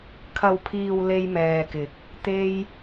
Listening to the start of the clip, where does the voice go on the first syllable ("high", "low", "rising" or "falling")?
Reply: low